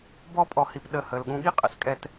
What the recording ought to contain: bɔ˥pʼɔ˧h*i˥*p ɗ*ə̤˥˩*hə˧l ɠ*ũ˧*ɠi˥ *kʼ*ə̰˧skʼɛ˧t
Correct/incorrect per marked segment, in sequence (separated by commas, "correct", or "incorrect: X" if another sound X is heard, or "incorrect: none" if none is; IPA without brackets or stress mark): incorrect: i˧, incorrect: ə˥˩, correct, incorrect: qʼ